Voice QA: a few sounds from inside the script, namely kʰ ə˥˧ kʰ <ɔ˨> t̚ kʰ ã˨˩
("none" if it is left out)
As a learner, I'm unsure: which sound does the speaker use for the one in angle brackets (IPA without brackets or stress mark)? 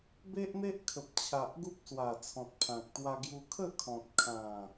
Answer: ɔ̃˨